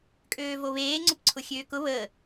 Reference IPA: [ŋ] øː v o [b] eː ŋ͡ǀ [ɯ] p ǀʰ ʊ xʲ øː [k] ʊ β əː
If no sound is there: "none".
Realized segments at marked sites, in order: kʼ, β, ʊ, k

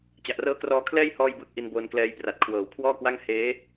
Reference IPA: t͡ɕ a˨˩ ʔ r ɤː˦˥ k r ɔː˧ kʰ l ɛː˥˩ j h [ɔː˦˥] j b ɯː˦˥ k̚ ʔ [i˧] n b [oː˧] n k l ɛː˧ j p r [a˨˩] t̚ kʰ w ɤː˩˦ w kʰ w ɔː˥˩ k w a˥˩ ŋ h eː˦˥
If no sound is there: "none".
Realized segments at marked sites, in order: ɔː˥˩, i˧, oː˧, a˨˩

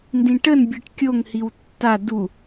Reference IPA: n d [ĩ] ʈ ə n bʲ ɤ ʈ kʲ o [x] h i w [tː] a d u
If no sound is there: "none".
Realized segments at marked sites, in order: ĩ, ŋ, tː

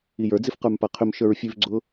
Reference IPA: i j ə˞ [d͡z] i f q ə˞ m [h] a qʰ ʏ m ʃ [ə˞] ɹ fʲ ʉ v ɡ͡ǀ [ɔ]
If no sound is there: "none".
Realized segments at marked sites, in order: d͡z, p, ə˞, ʊ

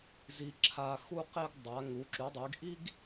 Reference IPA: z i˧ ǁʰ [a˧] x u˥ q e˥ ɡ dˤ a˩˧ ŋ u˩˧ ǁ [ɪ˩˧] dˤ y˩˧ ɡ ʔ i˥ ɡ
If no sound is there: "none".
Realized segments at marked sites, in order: a˧, y˩˧

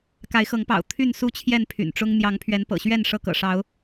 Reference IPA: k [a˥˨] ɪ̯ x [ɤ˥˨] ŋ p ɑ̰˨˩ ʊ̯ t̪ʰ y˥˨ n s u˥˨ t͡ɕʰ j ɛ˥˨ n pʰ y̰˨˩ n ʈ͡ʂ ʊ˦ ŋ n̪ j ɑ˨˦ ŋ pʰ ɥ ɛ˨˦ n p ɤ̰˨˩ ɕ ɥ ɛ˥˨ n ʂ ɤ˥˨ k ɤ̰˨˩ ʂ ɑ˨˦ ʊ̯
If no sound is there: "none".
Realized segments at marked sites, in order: a˨˦, ɤ˨˦

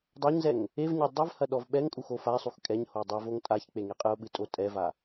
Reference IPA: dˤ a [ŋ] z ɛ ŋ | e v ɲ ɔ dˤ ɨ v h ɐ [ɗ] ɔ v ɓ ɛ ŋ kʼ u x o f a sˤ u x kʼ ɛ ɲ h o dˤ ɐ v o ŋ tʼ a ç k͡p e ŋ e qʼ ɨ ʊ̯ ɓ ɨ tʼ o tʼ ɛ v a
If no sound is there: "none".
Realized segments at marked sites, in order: ɲ, ɗ

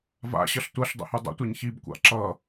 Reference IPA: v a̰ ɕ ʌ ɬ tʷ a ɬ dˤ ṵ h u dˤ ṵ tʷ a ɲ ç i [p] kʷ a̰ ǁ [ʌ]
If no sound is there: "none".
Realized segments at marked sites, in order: b, ʌ

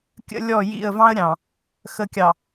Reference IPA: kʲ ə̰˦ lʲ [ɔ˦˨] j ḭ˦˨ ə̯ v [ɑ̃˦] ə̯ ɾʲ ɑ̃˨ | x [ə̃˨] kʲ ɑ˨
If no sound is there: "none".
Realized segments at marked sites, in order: ɔ˦˨, ɑ̃˦, ə˨

